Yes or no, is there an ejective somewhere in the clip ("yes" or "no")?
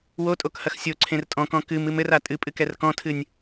yes